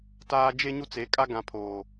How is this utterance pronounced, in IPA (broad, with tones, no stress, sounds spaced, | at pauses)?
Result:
t aː˦ d͡ʒ e˦ ɲ u˦ t͡s e˨˦ kʼ a˦ ɡ ã˨ pʰ oː˨